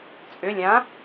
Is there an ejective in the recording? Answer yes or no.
yes